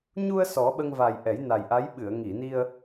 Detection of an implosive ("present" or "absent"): present